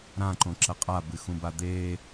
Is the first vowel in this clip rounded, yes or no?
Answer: no